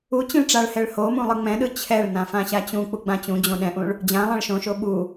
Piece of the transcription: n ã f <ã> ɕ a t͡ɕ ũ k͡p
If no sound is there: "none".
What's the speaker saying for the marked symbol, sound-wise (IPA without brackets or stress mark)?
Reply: ã